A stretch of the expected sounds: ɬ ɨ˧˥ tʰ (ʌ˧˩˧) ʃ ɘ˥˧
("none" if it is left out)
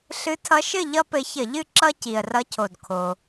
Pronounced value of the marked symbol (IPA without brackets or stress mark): ʌ˧˥